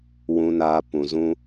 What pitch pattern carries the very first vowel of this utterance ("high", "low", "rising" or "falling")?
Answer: low